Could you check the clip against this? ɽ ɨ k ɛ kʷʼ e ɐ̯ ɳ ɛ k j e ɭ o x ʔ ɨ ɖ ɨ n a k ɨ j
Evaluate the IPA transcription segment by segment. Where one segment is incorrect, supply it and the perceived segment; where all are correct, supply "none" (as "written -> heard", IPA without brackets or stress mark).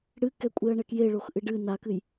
none